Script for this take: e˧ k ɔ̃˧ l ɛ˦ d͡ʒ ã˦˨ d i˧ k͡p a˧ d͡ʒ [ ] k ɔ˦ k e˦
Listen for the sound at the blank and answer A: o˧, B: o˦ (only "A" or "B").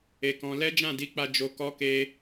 A